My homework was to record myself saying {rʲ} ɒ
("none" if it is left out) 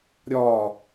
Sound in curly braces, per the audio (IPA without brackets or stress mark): ɾʲ